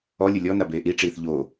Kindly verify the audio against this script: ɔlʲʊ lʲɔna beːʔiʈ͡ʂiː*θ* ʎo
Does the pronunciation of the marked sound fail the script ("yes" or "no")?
no